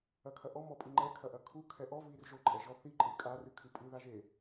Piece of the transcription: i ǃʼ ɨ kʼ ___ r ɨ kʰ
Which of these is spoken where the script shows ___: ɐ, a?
a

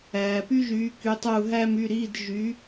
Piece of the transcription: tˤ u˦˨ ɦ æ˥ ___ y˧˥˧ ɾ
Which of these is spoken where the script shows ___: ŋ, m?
m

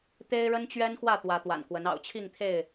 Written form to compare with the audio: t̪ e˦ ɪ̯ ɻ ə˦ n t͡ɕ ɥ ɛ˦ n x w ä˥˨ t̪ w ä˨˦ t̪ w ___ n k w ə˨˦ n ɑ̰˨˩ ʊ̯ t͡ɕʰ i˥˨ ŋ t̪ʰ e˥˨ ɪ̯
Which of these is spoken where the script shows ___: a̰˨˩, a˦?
a̰˨˩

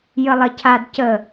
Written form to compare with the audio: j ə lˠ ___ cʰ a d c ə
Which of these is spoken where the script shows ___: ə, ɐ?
ɐ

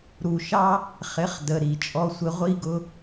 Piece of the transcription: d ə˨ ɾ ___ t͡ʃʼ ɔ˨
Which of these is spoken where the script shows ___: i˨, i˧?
i˨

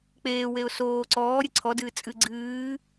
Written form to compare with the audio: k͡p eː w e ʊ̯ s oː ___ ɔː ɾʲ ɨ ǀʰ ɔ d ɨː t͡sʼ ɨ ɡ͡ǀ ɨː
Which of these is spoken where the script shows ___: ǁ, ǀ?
ǀ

